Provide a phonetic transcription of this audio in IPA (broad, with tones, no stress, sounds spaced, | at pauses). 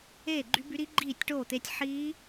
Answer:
eː˥˨ ɡ͡ǃ y˦˥ b y˦˥ ɾ i˦˥ ɡ͡ǃ iː˥˨ tʲ ʈ oː˥˨ t̪ e˦˥ tʲ ħ iː˦˥